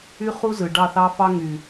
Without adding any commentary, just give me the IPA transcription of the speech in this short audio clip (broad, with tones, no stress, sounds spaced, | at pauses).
y˦ χ u˦ z ɯ˨ ɖ ɑ˦˨ θ ɑ˦ f ɑ˦ ŋ y˨